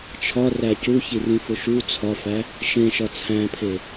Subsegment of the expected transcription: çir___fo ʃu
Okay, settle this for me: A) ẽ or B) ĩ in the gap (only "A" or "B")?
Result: B